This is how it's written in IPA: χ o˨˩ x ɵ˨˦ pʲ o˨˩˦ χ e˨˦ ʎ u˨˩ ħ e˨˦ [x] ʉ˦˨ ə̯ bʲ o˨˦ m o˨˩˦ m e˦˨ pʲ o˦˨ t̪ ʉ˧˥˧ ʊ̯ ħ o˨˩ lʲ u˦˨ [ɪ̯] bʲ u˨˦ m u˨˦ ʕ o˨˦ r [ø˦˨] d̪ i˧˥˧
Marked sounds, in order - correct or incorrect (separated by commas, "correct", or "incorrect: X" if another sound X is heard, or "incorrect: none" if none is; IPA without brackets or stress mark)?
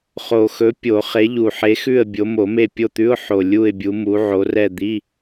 correct, correct, incorrect: ɛ˦˨